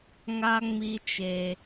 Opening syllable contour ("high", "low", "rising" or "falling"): high